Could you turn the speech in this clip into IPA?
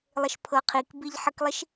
lˠ ɪ ʃ pʰ ɤ qʰ i k b i ʎ ħ ə k lˠ i ʃ

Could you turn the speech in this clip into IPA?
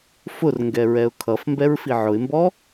f ʊ r ŋ ɡ ɛ ɹ ɛ ʊ̯ kʰ ʌ f m b ɛ ɹ f i ʕ ʊ ɪ̯ m b ɔ

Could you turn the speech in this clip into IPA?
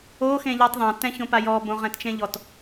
o x ẽ ʎ ɒ tˤ ðˤ ã t ɛ̃ ç õ p a j ɔ b õ ʁ ɛ̃ t t͡ʃ ẽ ʎ ɔ t

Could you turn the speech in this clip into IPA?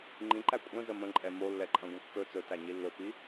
ŋ͡ǃ ĩ ǃ æ kʷʼ ə̃ z ə m ə̃ ǃʼ ɛ m o lː ɛ ǃʼ ɐ̃ ɡʷ ə̃ kː ɵ t͡s ɵ t æ ɲ i lː ɵ p i

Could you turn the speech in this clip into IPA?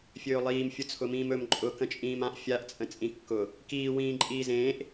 fʲ ɵː lˠ iː m fʲ ʊ t͡sʰ ʊ m ĩː m ɵ m ǃʼ ʊ k ə̃ t͡ʃʼ ĩː m ã ʔ fʲ a ʔ t͡sʼ ə̃ t͡sʼ ĩ kː ʊ | k iː w ĩː ǃʼ iː z ẽː ʔ

